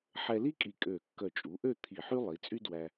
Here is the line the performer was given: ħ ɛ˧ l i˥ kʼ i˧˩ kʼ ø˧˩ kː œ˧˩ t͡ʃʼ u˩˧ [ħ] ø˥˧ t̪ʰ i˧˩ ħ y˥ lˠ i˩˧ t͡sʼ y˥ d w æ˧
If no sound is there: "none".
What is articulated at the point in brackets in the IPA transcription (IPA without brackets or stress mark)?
ʔ